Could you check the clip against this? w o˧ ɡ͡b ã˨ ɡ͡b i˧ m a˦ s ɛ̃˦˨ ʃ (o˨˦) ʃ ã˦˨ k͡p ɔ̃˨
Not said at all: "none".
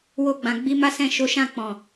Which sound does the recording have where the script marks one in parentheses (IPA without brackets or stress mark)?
o˨˦